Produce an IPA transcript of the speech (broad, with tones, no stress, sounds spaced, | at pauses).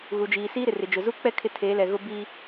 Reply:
ɣ u˨ d͡ʒ iː˨ s iː˦ ɾ ɪ˨ r ɪ˨ d͡ʒ ʊ˨ z u˦ k͡p ɛ˦ kʰ ɪ˦˨ tʰ eː˨˦ l ɛ˨ ɣ ʊ˦ b i˦